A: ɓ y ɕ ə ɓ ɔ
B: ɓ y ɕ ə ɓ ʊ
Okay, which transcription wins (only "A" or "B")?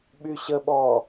A